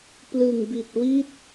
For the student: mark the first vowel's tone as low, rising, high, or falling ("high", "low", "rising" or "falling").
low